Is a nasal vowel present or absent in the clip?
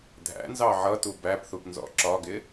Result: absent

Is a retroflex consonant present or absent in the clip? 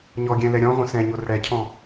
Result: present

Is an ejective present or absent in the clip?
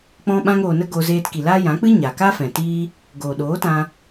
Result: absent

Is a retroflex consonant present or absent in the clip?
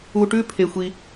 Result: present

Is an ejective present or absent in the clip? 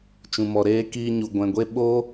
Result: absent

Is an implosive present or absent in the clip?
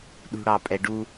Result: present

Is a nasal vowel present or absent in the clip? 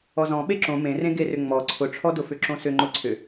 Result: present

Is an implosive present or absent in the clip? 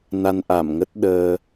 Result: present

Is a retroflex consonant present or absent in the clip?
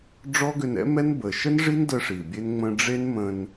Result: present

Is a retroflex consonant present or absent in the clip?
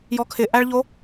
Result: present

